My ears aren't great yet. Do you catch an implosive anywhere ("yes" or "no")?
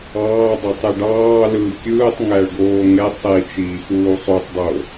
no